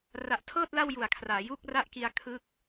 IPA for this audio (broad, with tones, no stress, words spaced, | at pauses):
ra˨˩ʔtʰɤː˥˩t̚ la˥˩wju˨˩a̯kʰraː˩˦ ju˥˩k̚ra˥˩ʔki˧a̯ kʰɯ˦˥k̚